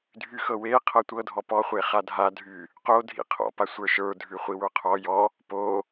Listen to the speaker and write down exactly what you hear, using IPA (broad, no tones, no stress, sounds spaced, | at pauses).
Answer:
dʱ y x ɤ w e qʰ ɤ tʷ ɤ dʱ ɔ p ɔ χʷ e χ a dʱ a dʱ y | q o dʱ ḭ qʰ ɔ̰ p a sʷ ə˞ ʃ ə˞ dʱ ʉ χʷ i w ə˞ qʰ ɔ j ɔ | p o